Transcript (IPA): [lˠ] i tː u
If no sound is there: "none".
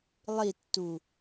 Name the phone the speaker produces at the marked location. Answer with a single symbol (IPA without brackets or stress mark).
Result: lˠ